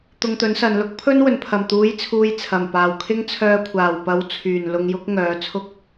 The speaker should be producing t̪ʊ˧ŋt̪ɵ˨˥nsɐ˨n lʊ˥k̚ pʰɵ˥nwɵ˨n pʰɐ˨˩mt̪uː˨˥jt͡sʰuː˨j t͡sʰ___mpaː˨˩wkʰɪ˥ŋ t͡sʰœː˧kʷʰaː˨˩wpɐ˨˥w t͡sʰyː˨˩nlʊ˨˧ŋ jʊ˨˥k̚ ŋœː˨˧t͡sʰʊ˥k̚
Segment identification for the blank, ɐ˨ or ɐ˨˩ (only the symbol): ɐ˨˩